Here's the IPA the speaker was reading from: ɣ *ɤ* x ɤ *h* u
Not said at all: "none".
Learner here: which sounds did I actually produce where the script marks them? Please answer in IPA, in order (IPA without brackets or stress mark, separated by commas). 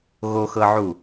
o, ʕ